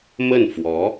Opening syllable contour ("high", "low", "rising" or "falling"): falling